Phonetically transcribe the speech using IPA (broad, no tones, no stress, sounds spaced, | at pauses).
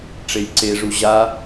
ʈ͡ʂ e j ǀ e ʐ u ʑ a